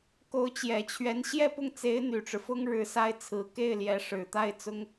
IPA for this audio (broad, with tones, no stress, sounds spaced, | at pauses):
k o˧˥ ʊ̯ t͡ɕ j ɛ˨˩ t͡ɕʰ ɥ ɛ˧˥ n ɕ j ɛ˥˧ p ʊ˥˩ ŋ t͡s e˧˥ ɪ̯ n̪ y˨˩ ʈ͡ʂ ɻ̩˦ f ʊ˥ ŋ ɻ ɻ̩˧˥ s a˥ ɪ̯ t͡sʰ ɹ̩˧˥ k e˥˩ ɪ̯ l j ɛ˧˥ ʂ ɻ̩˨˩ t̪ a˥˩ ɪ̯ t͡s ʊ˥ ŋ